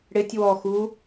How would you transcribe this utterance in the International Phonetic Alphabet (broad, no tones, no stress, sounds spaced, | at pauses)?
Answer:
ɽ ɪ tʲ w ɔ x u